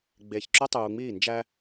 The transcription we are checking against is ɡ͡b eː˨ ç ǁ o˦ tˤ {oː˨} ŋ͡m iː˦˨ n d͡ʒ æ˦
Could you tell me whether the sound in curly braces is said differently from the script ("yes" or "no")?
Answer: yes